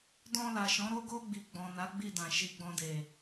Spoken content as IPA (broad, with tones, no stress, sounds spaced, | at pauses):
d ɔ̃˧ l a˨ ʃ ɔ̃˨˦ ɾ o˧ ɡ o˧ ɡ͡b i˨ ɡ͡b ɔ̃˨ n a˨˦ ɡ͡b i˦˨ d ã˨ ʃ i˧ ɡ͡b ɔ̃˧ d e˨